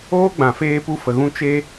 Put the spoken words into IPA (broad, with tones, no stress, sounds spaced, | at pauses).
oː˦ ɡ͡b ã˨ f eː˧ p u˧ f ə˨ ɣ ũ˧ t͡ʃ e˦